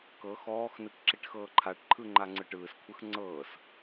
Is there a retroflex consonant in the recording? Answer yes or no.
yes